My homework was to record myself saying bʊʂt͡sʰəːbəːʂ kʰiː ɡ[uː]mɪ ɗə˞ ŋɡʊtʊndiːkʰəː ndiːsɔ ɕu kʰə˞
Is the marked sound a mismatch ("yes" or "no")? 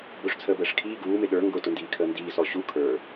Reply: no